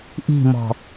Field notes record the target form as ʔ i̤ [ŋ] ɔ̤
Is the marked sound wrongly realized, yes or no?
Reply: yes